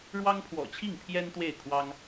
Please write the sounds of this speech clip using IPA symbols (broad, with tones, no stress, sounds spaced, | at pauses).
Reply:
ɻ w ɑ˦ ŋ pʰ w ɔ̰˨˩ t͡ɕʰ i˥˨ ŋ pʰ j ɛ˦ n t̪ w e˥˨ ɪ̯ kʰ w ɑ˦ ŋ